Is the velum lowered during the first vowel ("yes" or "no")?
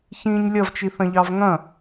yes